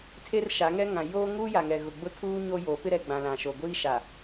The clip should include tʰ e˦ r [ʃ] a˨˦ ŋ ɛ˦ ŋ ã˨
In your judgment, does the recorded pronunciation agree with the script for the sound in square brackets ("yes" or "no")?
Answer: yes